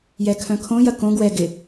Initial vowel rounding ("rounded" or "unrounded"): unrounded